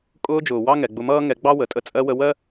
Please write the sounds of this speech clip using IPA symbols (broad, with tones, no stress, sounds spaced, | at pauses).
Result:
kʼ ʊː˧ d͡ʒ ʊː˨ w ɑ˦ ŋ ɛ˨ ɡ͡b ʊ˧ m ʌː˦ ŋ ɛ˧ ɡ͡b ɑ˦ w ə˨ tʼ ə˧ t͡sʼ ɜ˧ w ə˧ w ɜ˦